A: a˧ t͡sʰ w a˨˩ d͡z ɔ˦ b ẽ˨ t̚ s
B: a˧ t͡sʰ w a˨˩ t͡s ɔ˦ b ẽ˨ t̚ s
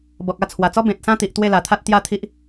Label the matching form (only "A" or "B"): B